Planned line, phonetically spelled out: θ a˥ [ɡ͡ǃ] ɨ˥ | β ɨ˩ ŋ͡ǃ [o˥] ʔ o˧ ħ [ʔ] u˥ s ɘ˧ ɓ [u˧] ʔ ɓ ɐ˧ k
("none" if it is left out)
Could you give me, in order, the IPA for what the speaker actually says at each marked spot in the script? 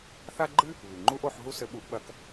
ɡ͡ǃ, u˥, ɦ, u˧

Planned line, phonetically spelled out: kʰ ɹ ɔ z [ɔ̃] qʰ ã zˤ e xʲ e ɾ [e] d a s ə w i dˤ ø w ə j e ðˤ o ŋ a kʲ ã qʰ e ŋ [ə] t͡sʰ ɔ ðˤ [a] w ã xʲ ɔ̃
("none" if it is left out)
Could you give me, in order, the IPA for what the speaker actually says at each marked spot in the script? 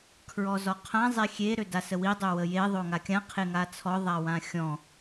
ɔ, ø, a, a

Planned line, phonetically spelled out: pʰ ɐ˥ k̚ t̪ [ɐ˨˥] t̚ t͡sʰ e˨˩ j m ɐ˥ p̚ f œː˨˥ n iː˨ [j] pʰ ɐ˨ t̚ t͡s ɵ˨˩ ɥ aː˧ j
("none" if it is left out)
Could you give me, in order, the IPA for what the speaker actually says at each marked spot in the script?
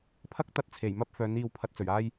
ɐ˧, w

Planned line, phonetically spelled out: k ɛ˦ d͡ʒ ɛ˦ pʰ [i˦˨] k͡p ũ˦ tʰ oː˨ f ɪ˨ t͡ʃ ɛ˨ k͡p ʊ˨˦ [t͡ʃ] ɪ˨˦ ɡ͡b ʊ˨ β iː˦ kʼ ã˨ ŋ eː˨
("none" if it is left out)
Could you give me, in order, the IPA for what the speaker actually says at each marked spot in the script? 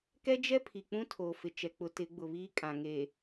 i˨, t

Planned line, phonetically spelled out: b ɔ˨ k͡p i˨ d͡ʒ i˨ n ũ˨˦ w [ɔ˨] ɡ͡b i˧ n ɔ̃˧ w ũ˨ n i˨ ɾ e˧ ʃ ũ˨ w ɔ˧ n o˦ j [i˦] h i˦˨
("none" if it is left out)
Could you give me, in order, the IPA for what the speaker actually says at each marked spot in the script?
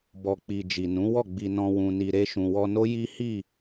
ɔ˦˨, i˦

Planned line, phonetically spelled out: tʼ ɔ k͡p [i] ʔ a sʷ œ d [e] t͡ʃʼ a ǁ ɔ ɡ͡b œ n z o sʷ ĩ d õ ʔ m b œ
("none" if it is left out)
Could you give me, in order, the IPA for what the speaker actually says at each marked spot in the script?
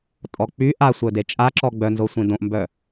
y, e

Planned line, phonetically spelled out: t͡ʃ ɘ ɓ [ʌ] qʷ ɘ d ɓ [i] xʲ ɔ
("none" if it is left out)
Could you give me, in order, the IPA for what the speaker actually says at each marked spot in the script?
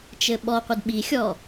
ɔ, i

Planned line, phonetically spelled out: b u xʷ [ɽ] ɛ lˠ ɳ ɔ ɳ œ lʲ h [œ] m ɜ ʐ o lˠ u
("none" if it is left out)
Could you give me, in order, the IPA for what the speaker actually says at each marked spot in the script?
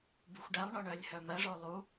ɖ, œ

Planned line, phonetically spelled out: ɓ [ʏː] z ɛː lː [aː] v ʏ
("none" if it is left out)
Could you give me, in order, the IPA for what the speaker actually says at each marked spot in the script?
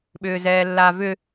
ʏː, aː

